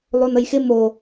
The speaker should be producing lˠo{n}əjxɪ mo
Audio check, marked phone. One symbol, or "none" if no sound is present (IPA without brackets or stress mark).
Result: n